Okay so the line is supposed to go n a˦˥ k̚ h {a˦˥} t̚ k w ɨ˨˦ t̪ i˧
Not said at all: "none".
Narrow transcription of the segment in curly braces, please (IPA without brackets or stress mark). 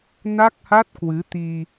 a˦˥